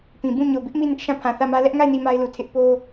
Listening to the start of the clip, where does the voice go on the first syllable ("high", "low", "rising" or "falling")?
low